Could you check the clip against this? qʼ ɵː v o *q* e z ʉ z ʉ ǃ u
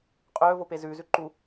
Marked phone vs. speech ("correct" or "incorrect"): incorrect